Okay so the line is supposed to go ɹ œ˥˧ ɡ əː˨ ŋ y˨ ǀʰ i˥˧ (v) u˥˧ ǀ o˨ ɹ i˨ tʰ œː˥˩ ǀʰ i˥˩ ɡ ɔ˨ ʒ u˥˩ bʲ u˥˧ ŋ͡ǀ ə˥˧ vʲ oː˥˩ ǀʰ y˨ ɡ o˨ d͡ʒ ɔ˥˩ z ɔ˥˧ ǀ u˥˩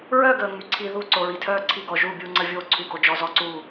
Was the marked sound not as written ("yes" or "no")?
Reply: yes